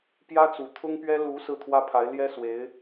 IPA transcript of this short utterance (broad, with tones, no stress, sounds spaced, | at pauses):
p j ä˥ t͡s u˨˩ t̪ʰ ʊ˥ ŋ p ɥ ɛ˥ l u˧˥ s ɹ̩˥˩ t̪ʰ w ä˥ pʰ a˧˥ ɪ̯ l j ɛ˥ s w e˧˥ ɪ̯